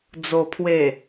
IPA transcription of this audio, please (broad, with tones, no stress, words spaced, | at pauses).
d͡zo˨˩pʰwe˨˩